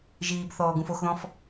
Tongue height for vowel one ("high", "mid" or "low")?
high